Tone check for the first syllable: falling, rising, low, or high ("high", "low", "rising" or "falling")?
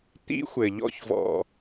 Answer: high